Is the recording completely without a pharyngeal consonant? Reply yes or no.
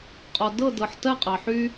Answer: no